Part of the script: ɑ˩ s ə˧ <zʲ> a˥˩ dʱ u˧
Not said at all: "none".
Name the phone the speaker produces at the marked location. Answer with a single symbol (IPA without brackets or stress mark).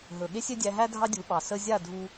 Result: zʲ